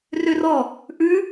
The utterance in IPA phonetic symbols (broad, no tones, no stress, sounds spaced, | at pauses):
r ø r ɔ | ʔ ʉ